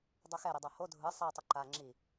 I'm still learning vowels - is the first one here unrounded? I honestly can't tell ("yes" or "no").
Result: no